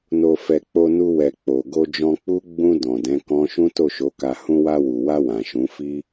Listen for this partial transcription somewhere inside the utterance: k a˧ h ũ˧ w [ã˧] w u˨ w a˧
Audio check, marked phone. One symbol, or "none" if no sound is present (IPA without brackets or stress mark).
a˧